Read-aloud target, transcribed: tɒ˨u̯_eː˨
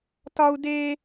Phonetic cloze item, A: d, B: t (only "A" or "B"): A